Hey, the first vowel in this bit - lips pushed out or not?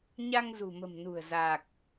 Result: no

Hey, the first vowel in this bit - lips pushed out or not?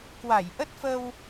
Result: no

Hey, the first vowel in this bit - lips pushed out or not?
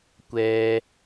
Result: no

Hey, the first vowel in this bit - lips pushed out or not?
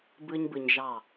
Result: no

